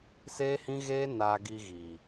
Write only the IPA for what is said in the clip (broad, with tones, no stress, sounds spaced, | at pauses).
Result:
s eː˧ h ĩ˧ ɣ eː˧ n aː˨ ɡ i˨ ɣ i˨